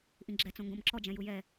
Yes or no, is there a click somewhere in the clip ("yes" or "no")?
yes